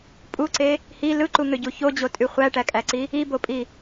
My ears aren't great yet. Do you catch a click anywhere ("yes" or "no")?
yes